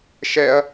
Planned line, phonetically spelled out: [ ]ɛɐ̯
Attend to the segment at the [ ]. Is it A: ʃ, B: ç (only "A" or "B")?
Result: A